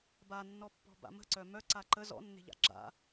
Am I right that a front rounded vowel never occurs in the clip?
no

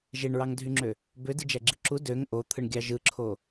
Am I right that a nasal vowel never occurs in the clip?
yes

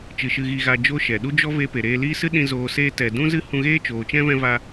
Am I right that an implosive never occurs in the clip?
no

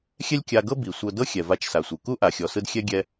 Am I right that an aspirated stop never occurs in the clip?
yes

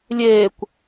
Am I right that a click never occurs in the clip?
yes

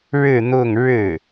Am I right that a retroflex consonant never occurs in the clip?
no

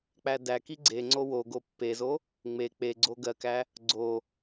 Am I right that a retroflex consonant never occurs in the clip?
yes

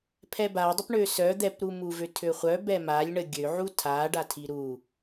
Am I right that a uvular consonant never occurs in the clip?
no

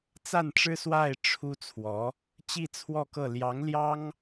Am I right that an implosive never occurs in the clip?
yes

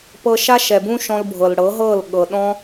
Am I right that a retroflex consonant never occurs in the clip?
no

